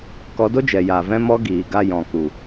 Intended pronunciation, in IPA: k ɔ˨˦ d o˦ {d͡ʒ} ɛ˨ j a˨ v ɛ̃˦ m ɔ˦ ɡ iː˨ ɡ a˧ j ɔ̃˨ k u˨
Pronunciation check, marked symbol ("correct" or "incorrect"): correct